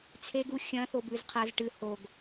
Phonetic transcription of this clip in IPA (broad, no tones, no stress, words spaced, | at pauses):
t͡sʰeɡu xʲɐ̃ θobʉzqʰɐz ʈɨ hoɡ